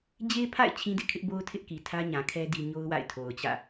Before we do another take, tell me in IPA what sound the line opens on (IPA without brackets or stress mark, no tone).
d͡ʑ